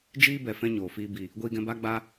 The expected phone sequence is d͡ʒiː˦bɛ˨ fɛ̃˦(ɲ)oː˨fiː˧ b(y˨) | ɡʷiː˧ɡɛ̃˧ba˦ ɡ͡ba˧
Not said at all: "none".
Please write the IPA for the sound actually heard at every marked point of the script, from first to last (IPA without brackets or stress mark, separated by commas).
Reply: ɲ, i˨